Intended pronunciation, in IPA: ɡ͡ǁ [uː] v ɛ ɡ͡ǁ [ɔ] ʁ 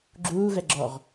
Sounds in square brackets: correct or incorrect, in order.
correct, correct

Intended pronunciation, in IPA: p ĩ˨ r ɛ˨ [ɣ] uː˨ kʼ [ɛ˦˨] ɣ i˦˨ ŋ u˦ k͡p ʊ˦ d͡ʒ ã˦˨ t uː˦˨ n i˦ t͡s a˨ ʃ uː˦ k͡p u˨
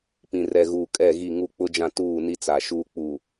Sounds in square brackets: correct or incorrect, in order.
correct, correct

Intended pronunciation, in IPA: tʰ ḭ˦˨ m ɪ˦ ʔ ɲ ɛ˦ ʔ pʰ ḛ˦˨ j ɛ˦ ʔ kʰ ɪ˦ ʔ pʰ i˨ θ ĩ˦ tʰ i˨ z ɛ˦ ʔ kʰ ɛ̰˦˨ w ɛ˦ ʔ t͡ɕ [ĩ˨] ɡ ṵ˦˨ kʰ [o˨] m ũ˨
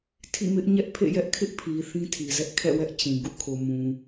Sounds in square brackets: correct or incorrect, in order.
correct, correct

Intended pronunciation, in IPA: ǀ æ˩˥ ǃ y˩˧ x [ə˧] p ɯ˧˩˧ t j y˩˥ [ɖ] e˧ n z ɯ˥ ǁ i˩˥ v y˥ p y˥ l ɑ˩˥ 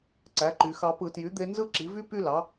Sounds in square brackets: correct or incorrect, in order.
incorrect: ɑ˧, incorrect: d̪

